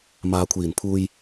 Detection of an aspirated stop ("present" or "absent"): present